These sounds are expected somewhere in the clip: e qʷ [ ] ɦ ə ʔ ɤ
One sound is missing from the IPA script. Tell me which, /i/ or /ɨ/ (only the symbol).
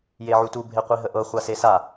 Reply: i